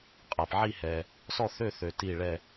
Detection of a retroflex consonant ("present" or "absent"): present